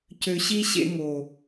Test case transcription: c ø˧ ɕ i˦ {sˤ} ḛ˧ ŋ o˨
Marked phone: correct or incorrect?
incorrect